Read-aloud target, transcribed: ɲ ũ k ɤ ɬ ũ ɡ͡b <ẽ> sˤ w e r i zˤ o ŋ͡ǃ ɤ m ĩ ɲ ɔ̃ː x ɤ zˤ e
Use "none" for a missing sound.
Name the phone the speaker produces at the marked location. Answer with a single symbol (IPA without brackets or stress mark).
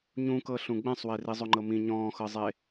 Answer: ɛ̃